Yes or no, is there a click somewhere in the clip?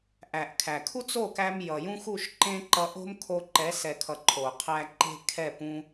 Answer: yes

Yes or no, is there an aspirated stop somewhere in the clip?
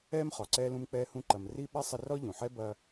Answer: no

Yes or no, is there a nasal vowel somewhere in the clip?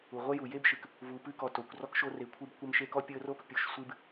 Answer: no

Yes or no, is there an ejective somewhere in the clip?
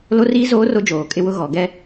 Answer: yes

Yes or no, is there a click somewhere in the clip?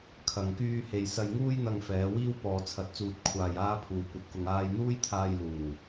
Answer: no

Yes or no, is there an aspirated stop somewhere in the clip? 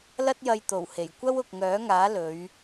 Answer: no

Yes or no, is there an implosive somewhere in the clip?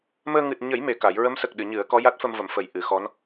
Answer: yes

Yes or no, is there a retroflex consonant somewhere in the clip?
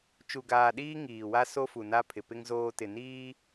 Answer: no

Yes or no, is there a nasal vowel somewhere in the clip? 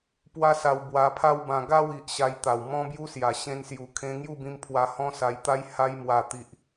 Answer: yes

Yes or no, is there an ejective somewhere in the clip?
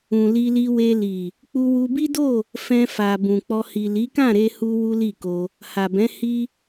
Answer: no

